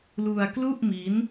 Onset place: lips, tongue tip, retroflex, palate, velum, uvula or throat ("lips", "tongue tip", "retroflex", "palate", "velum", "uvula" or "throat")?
tongue tip